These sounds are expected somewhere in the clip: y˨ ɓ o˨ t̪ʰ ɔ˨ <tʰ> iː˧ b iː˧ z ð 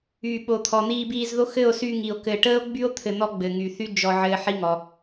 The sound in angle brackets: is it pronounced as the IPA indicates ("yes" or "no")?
no